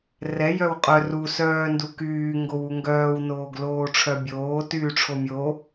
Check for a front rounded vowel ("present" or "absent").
present